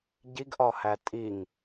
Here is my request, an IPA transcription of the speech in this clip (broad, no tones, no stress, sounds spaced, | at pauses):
ɟ i ɡ ʔ ɒ h æ tʼ i ŋ